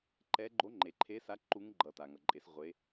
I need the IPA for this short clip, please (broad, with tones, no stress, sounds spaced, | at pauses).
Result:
ǃ ɛ˧˥ ɡ͡ǃ o˧˥ ŋ͡ǃ e˨ ǃʰ e˧˥ s a˧˥ ǃ u˧˥ ŋ ɡ͡ǃ ʌ˨ t a˨ ŋ ʌ˨ ǃʼ e˧˥ s ʁʷ e˧˥